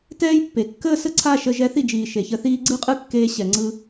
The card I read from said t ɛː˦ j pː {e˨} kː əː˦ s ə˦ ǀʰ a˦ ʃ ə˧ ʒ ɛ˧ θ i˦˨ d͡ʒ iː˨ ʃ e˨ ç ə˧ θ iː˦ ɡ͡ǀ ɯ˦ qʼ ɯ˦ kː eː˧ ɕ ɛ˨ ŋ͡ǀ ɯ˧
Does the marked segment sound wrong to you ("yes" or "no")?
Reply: no